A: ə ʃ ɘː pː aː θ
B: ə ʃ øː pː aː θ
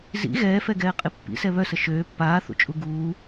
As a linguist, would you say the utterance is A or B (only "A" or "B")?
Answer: B